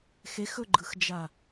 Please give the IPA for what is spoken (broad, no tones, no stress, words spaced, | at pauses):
xexɵɡ͡ǃɯxd͡ʒa